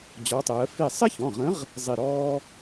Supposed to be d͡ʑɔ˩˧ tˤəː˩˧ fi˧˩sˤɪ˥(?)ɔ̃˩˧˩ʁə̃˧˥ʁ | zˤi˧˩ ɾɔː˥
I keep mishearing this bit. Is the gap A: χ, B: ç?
B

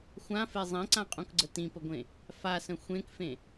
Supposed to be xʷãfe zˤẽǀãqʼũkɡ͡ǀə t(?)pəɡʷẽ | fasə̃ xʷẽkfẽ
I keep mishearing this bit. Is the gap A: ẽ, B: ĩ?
B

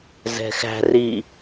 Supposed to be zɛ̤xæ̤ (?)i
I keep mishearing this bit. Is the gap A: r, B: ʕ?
A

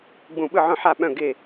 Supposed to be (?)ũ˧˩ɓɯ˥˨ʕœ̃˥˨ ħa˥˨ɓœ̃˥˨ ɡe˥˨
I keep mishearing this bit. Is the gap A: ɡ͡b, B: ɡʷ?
A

